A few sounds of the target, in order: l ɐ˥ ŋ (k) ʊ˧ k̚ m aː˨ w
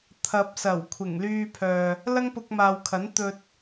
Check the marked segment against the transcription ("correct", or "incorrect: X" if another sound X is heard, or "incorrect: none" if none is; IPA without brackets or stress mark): incorrect: p